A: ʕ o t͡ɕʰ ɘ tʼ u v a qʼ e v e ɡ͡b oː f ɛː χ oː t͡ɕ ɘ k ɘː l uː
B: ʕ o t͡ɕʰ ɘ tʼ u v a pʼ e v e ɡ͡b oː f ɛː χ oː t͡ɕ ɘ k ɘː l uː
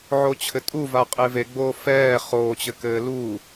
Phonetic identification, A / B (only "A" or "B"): A